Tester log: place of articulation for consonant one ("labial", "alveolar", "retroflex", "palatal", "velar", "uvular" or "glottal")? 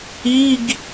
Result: velar